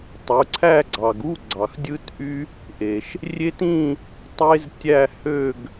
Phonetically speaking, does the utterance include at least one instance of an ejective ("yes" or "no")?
no